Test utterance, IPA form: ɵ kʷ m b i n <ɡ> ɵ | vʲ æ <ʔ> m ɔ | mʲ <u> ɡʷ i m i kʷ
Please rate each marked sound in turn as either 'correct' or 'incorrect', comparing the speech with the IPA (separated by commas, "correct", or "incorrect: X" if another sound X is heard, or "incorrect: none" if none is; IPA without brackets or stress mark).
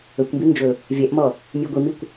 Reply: incorrect: d͡ʒ, correct, incorrect: ʉ